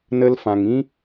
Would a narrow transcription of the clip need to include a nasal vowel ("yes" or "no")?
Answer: yes